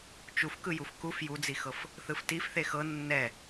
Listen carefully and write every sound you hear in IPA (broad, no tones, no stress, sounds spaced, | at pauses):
t͡ʃ u f k ɯ j u f k u f j u d͡z i x ɤ f | θ ɯ f t i f θ e x ɤ nː ɛ